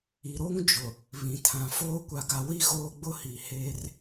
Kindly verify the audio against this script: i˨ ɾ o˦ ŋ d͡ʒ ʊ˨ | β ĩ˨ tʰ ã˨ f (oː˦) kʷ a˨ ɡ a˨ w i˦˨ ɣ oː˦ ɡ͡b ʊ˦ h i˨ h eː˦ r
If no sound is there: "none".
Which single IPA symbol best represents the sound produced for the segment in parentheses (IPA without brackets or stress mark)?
oː˦